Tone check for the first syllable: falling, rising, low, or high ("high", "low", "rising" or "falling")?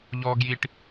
high